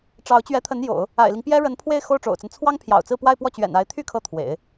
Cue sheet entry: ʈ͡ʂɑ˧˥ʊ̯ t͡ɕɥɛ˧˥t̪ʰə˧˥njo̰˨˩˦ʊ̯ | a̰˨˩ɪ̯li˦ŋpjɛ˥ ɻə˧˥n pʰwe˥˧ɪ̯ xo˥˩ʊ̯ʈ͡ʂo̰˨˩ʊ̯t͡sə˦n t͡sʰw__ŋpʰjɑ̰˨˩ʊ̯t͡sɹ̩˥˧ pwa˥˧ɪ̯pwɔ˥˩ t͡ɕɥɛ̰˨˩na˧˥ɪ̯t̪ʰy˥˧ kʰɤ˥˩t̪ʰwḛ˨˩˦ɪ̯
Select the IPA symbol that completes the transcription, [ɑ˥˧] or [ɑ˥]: ɑ˥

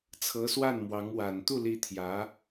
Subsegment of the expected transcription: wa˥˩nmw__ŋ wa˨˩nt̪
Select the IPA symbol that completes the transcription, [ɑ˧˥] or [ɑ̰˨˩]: ɑ˧˥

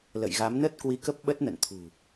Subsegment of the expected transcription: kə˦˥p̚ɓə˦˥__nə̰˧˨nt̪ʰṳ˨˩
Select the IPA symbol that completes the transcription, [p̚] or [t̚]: t̚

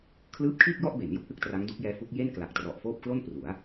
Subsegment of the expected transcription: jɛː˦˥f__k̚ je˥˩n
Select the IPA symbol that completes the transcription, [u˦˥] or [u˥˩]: u˦˥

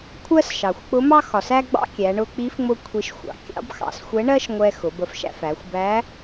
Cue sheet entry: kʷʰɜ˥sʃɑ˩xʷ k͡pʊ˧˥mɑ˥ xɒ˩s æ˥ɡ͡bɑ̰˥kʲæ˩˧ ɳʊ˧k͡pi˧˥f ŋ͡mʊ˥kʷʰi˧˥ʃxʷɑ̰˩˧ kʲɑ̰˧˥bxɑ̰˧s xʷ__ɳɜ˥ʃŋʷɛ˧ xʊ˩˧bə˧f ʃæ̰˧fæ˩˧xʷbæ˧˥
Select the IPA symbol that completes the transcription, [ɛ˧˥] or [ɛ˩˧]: ɛ˧˥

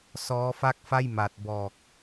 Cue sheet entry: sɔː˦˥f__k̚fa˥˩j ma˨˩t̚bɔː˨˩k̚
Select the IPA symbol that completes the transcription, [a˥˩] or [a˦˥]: a˥˩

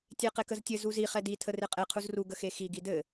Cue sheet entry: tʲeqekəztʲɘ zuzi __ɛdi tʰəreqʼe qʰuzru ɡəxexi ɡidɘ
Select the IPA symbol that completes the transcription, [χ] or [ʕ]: χ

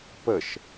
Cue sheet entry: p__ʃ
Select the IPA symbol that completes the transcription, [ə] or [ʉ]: ə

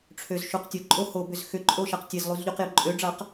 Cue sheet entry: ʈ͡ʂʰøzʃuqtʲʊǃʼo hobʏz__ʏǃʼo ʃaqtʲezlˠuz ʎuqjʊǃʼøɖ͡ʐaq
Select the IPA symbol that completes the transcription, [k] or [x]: x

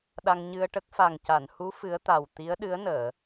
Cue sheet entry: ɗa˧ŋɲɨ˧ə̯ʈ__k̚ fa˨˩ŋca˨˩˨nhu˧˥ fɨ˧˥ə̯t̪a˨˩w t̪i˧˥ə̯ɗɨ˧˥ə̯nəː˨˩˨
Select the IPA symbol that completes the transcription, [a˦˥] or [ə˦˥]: ə˦˥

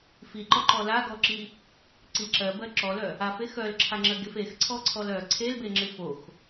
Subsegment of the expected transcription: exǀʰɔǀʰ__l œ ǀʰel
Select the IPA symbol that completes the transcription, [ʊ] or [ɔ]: ɔ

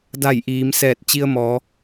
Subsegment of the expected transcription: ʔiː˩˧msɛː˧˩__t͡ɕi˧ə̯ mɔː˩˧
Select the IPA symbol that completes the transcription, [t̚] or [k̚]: t̚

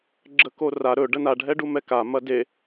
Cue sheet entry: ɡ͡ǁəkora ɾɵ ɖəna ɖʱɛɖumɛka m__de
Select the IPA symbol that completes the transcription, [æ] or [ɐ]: ɐ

